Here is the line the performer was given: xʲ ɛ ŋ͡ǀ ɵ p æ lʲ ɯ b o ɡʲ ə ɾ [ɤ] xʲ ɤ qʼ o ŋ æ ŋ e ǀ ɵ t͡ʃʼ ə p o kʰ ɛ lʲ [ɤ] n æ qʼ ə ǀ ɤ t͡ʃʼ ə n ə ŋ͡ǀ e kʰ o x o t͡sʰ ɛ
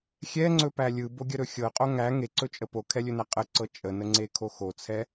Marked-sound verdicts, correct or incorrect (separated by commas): incorrect, incorrect